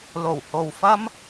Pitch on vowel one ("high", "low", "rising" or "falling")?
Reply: low